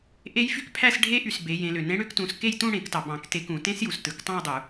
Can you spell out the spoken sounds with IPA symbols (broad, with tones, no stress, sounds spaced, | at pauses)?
ʔ e˦˥ j f y˦˥ k pʰ æ˥˧ s ɖʱ e˦˥ ʔ y˩ s b e˩˧ j ẽ˩˧ l ø˩ n ẽ˦˥ ɽ ø˦˥ k t ũ˩˧ s k e˥˧ j t ũ˥˧ ɽ ẽ˧˩˧ k t ɑ˩ b ɑ̃˧˩˧ k t e˧˩˧ k ũ˧˩˧ t ẽ˦˥ s j u˩ s t ɯ˩˧ k tˤ ɑ̃˥˧ j dˤ u˧˩˧